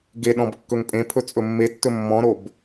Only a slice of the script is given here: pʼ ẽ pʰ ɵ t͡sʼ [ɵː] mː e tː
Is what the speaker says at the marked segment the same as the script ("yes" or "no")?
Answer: no